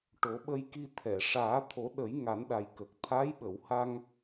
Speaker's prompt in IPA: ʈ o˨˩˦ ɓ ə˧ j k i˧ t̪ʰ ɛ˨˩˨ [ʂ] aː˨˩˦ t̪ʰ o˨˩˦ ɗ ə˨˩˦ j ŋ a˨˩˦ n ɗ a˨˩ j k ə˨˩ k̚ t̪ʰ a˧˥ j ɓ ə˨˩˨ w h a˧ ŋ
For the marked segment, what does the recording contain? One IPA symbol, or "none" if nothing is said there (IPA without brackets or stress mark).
ʂ